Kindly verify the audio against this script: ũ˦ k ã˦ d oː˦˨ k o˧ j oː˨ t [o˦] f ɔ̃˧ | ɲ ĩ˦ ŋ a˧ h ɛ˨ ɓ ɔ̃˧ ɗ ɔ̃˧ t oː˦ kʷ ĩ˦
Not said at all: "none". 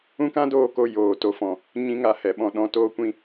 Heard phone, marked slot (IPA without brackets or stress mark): o˦